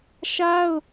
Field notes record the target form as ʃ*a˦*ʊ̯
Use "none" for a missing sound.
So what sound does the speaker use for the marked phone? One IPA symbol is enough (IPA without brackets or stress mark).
a˦